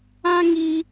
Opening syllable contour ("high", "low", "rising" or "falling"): high